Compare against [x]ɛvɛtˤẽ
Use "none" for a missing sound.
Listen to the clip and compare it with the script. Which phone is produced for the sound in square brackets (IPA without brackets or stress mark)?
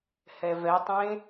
h